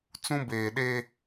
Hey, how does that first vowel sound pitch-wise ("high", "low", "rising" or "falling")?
high